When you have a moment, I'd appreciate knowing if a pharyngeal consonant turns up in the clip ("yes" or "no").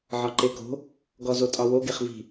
yes